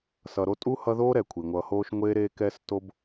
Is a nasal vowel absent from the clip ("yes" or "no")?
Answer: yes